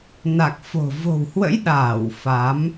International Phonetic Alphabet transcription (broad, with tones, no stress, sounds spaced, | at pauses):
n a˨˩ k̚ f o̤˨˩ v o̤˨˩ w h w ə̰˧˥ j ɗ aː˧˩ w f a˨˦ m